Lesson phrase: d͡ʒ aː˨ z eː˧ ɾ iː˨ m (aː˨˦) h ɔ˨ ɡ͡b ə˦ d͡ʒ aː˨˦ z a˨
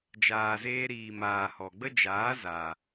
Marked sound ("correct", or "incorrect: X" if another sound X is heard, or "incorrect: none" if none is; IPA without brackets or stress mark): incorrect: aː˨